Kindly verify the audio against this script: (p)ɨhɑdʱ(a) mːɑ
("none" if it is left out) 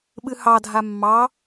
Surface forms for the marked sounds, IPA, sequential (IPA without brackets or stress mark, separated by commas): ɓ, a